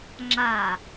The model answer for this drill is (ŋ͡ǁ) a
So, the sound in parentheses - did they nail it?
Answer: yes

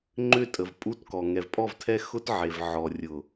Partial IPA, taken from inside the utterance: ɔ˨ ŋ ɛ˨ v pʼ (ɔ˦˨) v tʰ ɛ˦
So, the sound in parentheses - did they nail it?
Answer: yes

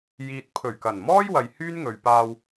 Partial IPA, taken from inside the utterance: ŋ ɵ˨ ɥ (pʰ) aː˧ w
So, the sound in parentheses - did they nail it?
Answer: no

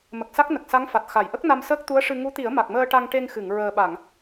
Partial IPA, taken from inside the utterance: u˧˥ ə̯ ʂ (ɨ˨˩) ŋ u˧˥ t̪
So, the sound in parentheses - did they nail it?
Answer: no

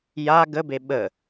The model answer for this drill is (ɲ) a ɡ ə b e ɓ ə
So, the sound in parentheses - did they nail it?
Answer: no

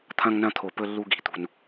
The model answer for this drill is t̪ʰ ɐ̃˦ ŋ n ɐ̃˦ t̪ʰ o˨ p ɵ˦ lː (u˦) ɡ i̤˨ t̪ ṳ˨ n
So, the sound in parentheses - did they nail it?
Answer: yes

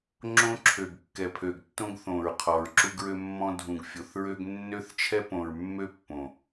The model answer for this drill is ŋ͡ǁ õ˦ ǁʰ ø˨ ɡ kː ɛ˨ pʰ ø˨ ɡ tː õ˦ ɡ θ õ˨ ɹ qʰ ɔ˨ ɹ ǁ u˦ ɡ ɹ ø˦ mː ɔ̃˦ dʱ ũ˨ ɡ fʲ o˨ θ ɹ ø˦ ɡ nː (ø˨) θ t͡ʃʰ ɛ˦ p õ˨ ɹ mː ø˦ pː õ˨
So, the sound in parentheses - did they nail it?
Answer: no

